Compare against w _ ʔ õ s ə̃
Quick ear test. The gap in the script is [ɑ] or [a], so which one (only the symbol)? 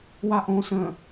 a